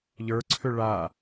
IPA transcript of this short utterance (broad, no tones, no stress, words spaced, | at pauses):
ʎə˞ǀʰʏ ɭa